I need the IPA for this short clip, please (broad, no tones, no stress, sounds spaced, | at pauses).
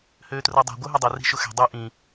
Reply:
h øː t r o dˤ o̤ ɡʷ ə˞ ɦ e dˤ o r i̤ ʃ ʊ x ɛ̤ dˤ e ʔ ĩ